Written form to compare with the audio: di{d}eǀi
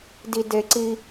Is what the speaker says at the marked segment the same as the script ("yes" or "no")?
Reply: yes